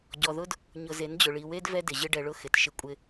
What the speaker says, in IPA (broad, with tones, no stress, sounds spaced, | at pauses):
ɟ ɔ˨ ð ʊ˦ d | ɲ ʊ˨ z e˨˦ n d͡ʑ ʊ˨ ɭ i˨ w e˦ d v ɛ˦ d ɪ˨ ʑ ɪ˦ ɖ ɛ˨ ɭ ʊ˦ x ɪ˨ t ʃ ɪ˦ kʷʼ ɪ˦